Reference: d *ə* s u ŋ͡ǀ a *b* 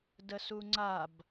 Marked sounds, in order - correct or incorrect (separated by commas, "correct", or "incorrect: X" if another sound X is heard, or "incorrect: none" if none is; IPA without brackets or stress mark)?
correct, correct